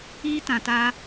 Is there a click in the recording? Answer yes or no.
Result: no